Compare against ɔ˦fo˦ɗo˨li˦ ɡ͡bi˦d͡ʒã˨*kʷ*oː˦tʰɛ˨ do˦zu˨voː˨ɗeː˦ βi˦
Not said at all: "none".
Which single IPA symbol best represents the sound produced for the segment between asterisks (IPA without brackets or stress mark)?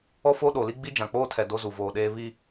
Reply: k͡p